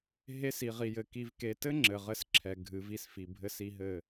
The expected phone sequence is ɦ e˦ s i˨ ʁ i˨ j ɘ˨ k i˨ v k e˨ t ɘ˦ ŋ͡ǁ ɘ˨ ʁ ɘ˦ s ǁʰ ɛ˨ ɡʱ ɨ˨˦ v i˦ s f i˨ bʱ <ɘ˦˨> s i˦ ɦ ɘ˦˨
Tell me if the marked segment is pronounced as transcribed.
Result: no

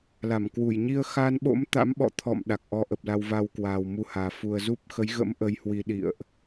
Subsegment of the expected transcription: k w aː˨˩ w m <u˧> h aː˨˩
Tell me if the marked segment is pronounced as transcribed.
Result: yes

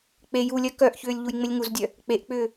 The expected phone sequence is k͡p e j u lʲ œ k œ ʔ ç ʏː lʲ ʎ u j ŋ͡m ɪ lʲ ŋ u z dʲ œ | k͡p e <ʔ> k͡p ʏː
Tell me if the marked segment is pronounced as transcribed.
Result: yes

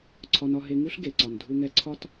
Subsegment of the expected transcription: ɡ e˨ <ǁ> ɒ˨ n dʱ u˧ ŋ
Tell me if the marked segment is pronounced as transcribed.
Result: no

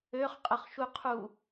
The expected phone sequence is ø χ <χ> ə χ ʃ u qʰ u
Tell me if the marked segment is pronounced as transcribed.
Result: no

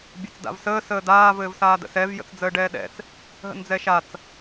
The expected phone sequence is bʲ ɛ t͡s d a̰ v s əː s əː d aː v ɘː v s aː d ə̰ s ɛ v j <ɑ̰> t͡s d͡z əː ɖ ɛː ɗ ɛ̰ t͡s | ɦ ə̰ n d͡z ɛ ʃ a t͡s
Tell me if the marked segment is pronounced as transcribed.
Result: no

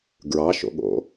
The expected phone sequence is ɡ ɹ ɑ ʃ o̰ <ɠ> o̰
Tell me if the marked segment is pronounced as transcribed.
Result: yes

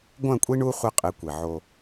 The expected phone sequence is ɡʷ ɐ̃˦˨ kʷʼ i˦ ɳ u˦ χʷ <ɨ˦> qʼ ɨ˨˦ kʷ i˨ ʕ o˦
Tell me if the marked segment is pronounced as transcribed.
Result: no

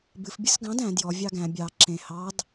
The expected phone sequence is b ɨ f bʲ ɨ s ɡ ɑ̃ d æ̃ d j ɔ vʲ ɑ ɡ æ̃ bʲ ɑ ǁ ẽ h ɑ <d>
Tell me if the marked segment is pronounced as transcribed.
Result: yes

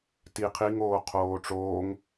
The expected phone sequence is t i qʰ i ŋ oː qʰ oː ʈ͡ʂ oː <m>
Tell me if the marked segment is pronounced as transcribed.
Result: no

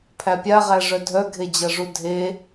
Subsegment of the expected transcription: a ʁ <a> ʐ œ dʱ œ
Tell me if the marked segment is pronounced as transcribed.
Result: no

